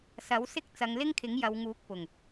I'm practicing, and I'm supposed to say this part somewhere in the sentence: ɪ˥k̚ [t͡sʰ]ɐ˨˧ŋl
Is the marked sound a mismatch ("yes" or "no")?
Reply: yes